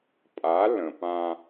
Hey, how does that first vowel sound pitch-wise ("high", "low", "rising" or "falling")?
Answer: rising